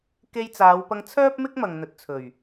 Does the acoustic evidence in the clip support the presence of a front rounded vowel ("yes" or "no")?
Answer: yes